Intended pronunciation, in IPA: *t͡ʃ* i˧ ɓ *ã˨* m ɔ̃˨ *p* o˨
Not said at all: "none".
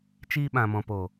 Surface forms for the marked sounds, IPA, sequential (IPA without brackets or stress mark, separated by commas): t͡ʃ, ã˨, p